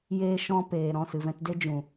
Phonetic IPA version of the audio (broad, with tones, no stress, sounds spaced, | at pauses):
j e˧ ʃ ɔ̃˧ p eː˨ ɾ ɔ̃˦˨ s ɨ˨ v ɛ̃˧ t d e˦ d͡ʒ ũ˨